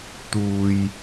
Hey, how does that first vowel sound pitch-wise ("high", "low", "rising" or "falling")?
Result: high